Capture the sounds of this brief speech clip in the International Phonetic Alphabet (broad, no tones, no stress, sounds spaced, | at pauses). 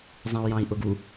zˤ ĩ u̯ j ɑ̃ i̯ ʔ ʊ ɡ u